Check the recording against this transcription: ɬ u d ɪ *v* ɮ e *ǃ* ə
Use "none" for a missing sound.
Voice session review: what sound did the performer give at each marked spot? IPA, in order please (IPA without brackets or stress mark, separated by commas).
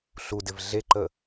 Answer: v, ǃ